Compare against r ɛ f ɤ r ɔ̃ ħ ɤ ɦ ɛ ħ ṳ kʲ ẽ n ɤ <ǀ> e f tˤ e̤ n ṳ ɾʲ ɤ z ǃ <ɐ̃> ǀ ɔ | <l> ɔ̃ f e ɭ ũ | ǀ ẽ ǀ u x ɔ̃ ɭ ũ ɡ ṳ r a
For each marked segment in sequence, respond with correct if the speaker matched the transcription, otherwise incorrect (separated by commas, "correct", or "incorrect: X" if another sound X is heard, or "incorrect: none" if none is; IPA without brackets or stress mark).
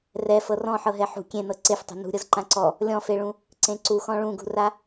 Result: correct, incorrect: ã, incorrect: lʲ